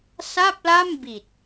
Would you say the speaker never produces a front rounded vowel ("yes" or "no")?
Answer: yes